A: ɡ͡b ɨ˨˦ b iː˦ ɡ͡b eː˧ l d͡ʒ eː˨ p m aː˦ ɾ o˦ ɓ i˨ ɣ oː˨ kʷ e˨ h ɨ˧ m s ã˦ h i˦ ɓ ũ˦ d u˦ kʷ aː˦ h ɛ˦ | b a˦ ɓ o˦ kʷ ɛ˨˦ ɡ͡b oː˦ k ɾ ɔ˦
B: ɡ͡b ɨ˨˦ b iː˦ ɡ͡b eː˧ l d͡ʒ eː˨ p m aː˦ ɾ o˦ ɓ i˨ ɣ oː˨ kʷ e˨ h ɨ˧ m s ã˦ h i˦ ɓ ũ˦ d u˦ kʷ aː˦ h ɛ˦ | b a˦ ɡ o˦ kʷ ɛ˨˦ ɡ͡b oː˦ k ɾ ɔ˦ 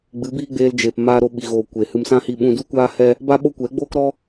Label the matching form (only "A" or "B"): A